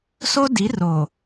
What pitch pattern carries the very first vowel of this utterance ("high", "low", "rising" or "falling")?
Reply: high